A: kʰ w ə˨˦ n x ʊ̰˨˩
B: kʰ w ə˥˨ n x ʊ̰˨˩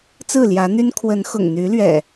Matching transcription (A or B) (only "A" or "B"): A